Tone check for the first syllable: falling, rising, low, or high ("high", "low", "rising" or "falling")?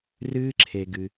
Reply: high